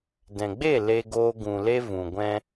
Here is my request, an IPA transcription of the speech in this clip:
d ɛ̃˨ ɡ͡b e˦˨ l e˧ ɡ oː˧ ɡ ũ˨ l e˧ v ũ˨ ɡʷ ɛ̃˧

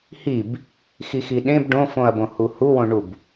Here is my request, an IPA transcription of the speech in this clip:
h i b | x i x i ɗ ẽ b ɖ õ f õ ɐ̯ b õ h u h u w õ ɳ u b

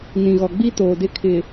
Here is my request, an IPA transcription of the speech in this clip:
n ĩ˨ ɣ ɔ˨ ɡ͡b i˦ t oː˨ d ɪ˦ kʰ ɪ˨

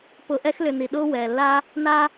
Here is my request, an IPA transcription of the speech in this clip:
p ʊ˨ ʔ ɛ˦ x l ʏ˨ n i˩ ɗ ʊː˦ w ɛː˩ lː a˦ | n a˦

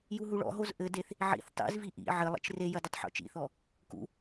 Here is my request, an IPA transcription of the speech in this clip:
j u ɦ u ɭ ɔ̰ ɦ o z ʔ ɘ d e θ | ʕ ḭ θ tˤ ḭ z v i ʔ ḭ ʕ ɘ lˠ ḭ t͡ʃ r e j ɐ d ɘ tˤ ħ ṵ t͡ʃ ḭ θ ɔ | k ṵ

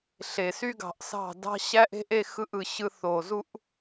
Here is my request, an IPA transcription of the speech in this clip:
ɬ e˨ s y˦ ɡ ɑ̤˨ ʔ s ɑ̤˦˨ d ɑ̤˦ ɕ æ˦ ʔ e̤˦ ʔ e˦ x ɯ˦ ʔ ɯ˨ ɕ ɯ˦ θ o˨ z u˦ ʔ

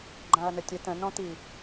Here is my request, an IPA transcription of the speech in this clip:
ɡ͡ǃ ã ɐ̯ n ə tʲ ə t̪ ə̃ n ɔ̃ t̪ i

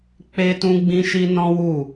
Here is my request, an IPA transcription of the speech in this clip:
k͡p e˦ t ũ˦ ɡ͡b ĩ˦ ʃ i˦ n ɔ̃˦ w u˦˨

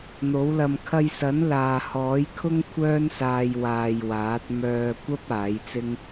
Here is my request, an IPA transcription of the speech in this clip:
n̪ o˨˥ w l ɐ˧ m kʰ ɐ˧ j s ɐ˨˥ n l aː˨ h ɔː˨˥ j kʰ ʊ˥ ŋ kʷʰ œː˥ n s aː˧ j w aː˧ j w aː˨˥ t̚ m œː˧ kʷ ɐ˥ p̚ aː˨˥ j t͡s ɪ˥ ŋ

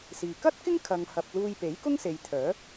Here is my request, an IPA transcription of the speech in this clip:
s iː˨ k ɐ˥ t̚ k ɪ˥ ŋ kʰ ɐ˧ ŋ h ɐ˧ p̚ l uː˧ j p e˨˥ j k ʊ˥ ŋ s e˨ j t̪ʰ œː˨˥

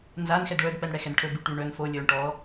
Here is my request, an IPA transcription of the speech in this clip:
n z a n x ɛ d ɭ œ d p ɛ n ɽ ɛ x ɛ n ʈʰ ɵ b y ʈ y ɳ œ n f o lʲ ɵː ɳ ʈ ɔ

